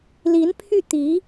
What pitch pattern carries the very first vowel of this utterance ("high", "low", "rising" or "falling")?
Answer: rising